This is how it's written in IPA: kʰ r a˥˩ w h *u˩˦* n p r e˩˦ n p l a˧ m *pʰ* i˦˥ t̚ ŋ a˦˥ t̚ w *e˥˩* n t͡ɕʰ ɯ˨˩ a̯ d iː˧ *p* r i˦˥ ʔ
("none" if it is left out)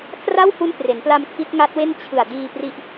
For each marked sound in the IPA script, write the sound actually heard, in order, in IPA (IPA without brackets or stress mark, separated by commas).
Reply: u˦˥, kʰ, e˥˩, p